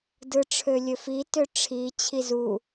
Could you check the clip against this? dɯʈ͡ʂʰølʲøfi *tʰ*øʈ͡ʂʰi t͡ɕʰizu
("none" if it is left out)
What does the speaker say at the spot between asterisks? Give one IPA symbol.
t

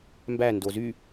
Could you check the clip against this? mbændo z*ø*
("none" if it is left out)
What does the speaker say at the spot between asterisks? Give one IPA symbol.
y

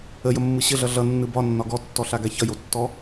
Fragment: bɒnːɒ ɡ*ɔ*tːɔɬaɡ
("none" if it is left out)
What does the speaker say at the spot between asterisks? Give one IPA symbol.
ɔ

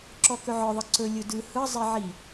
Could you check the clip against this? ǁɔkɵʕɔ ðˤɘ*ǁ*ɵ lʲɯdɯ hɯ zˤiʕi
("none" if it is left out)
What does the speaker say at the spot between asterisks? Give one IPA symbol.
ǀ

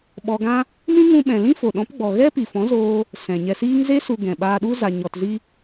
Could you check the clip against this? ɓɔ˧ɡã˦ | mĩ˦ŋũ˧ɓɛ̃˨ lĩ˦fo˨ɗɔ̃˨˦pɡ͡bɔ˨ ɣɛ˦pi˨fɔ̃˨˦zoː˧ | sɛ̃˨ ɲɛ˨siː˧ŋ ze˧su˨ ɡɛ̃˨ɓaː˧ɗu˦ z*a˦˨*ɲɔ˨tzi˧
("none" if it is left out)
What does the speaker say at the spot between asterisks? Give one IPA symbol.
a˨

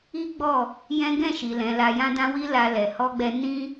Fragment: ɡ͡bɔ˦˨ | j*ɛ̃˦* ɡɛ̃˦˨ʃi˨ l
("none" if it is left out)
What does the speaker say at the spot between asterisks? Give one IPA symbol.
ɛ̃˦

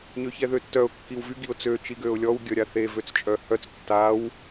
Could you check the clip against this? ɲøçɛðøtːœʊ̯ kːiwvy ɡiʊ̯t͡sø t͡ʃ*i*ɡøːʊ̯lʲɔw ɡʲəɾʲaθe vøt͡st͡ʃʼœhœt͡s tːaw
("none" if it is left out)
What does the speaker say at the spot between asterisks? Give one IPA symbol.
i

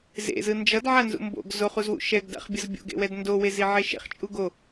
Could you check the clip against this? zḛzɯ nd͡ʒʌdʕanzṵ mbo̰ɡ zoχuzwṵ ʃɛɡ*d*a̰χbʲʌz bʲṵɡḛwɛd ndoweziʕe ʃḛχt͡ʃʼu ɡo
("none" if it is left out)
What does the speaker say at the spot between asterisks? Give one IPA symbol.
d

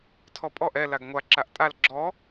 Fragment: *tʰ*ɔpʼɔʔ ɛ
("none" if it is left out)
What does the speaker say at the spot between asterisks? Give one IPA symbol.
tʰ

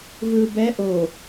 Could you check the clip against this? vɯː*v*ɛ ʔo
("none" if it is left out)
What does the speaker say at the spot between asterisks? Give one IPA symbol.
b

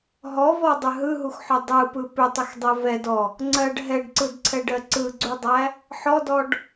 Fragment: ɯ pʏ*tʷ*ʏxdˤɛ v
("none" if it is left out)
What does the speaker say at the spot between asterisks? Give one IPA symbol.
tˤ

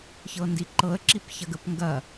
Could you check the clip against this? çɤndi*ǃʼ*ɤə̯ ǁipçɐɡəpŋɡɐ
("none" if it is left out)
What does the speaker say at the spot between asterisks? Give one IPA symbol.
ǃ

